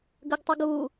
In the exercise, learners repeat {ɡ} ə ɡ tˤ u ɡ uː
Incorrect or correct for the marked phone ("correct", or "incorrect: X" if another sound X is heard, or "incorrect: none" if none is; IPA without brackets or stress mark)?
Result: correct